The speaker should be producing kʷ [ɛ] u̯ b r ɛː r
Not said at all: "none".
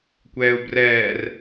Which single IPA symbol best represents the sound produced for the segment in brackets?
ɛː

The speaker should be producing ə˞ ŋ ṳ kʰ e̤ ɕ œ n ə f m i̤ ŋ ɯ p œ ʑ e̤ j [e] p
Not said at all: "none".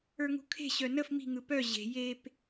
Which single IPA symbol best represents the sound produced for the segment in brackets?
e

